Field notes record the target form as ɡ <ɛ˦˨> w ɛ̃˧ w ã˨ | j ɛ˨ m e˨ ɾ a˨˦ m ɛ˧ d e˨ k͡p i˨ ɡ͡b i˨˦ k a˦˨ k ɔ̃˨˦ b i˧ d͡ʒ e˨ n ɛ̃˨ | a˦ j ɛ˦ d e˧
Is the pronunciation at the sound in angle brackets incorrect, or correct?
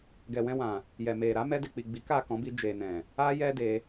incorrect